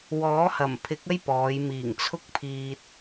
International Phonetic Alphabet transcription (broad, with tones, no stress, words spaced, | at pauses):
wɔː˨˥hɐ˨˩mpʰɪ˨˥k̚ ɐ˥jpɔː˨˧j miː˨˩ŋt͡sʰʊ˧k̚pʰiː˨t̚